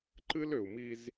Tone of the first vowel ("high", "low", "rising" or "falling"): high